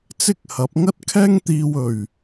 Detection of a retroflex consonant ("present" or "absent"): absent